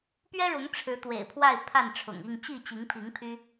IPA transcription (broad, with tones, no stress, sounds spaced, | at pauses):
p ɥ ɛ˦ ɻ ʊ˨˦ ŋ ʈ͡ʂʰ ɻ̩˨˦ t̪ w ḛ˨˩ ɪ̯ pʰ w a˥˨ ɪ̯ pʰ a˥˨ n ʈ͡ʂʰ ʊ̰˨˩ ŋ i˥˨ ŋ t͡ɕ i˥˨ t͡ɕ i˨˦ ŋ pʰ i˨˦ ŋ pʰ y˦